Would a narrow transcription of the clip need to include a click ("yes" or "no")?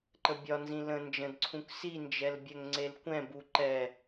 yes